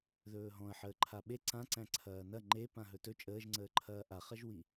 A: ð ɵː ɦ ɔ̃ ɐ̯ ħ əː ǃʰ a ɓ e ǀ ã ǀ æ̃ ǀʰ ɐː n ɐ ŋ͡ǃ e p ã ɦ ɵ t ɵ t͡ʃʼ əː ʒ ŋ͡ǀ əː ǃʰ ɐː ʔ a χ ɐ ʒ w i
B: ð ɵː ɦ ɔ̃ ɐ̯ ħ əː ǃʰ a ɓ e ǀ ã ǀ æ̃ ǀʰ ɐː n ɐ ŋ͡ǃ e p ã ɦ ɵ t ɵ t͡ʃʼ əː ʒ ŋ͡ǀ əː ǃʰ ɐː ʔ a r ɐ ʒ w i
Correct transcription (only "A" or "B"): A